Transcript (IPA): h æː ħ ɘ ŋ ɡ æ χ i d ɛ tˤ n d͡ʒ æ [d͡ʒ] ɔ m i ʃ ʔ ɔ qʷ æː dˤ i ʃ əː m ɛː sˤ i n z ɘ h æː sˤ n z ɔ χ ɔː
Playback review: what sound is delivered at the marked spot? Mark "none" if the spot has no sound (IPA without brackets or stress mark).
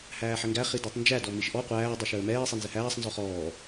d